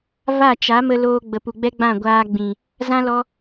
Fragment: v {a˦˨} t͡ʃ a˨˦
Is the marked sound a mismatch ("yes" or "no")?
no